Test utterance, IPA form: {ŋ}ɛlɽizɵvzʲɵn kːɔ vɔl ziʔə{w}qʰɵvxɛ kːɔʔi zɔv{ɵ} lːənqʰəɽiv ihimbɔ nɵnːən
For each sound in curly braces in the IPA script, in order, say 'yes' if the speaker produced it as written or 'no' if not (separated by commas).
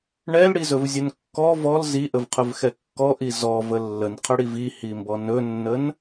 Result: no, no, no